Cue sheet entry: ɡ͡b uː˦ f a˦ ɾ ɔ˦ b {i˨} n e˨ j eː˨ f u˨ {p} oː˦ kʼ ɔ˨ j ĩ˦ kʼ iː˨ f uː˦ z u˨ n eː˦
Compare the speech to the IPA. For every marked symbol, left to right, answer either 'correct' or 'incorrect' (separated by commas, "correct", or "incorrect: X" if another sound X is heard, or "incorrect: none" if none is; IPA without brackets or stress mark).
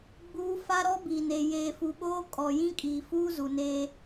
correct, incorrect: ɓ